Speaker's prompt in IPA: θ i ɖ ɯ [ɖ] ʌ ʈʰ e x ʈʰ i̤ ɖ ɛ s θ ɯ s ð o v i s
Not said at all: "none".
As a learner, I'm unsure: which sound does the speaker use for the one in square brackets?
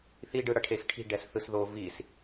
ɽ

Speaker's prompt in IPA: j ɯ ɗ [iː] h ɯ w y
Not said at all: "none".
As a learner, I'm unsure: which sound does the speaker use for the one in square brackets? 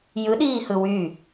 iː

